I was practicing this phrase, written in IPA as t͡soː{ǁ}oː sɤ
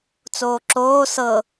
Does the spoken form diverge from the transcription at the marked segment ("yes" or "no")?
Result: no